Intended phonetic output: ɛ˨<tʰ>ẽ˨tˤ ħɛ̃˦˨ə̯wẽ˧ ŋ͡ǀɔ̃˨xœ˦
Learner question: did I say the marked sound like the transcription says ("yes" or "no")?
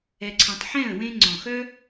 no